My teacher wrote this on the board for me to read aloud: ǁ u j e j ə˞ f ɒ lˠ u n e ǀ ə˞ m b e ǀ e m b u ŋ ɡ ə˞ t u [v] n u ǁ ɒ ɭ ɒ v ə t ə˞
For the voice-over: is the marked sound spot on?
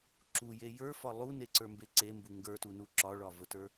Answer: no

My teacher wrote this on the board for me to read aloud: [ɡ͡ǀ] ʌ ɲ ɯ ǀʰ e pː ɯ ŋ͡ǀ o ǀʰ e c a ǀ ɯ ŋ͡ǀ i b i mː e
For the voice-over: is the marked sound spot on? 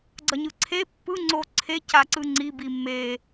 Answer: yes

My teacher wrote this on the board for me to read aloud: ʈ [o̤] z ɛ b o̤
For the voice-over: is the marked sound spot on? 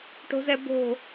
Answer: yes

